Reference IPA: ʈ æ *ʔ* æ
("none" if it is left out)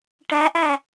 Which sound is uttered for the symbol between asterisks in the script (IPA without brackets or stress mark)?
ʔ